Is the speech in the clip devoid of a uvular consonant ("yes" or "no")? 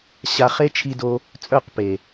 no